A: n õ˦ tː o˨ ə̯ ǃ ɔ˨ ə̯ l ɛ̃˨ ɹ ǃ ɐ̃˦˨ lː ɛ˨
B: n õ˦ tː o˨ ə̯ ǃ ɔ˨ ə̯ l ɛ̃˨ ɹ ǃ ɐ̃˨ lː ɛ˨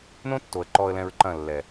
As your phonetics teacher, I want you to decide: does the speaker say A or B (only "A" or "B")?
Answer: A